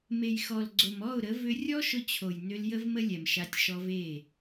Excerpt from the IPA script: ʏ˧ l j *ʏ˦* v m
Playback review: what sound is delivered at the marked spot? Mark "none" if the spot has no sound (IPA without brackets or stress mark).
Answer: ə˦